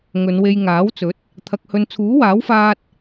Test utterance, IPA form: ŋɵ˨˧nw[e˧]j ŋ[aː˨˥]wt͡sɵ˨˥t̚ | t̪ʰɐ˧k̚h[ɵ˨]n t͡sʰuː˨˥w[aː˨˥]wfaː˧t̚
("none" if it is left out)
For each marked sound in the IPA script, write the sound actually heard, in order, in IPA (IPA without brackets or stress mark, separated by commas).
e˧, aː˨˥, ɵ˧, aː˨˥